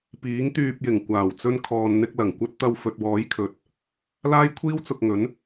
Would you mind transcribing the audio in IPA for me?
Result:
piː˨˥ŋt̪yː˧p̚jɪ˨˩ŋ kʷaː˨˩wt͡sɵ˧nkʰɔː˨nn̪ɪ˧k̚ lɐ˨˩ŋkʷɐ˥t̚ t̪ɐ˧wfɵ˨t̚wɔː˨˥jkʰɵ˨˥t̚ | laː˥jkʷʰiː˥wt͡sʊ˧k̚ŋɵ˨˥n

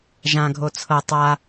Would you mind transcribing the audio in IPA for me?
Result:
ʒãɡʱo t͡sʰɤ tˤa

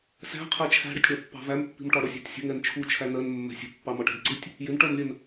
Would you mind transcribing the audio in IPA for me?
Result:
sæ̤ qʰɛt͡ʃʰæ̤ɽətʲ ɽæpːɑ̤væmpːi̤m ʈɒɽʊsʲɑ̤tʲsʲə̤ ŋɛnt͡ʃʰu t͡ʃʰænɜn mːɛ̤sʲə̤ pːɑmɒʈɛ̤dǀitʲ | jɪnʈɜmlʲɜn

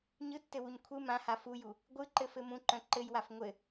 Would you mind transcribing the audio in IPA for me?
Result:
ɲɯtːɘwuɲ kʷʰɯ mãha fuju | ɡʷɯǃɘfɘ mũǃœ̃ ǃɘjwaf ŋʷɘ

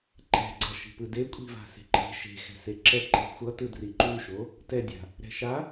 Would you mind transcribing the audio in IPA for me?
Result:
ǃɛ̤ɡ͡ǀʌ ʃi̤pɯde kʷʼi̤va̤se̤ ǃe̤ ʃe̤ xɛ̤seǁɛ ǃe̤xʷʌ tɯdriǃuʃo | tɛdʲa̤ | ɾɛ̤ʃa

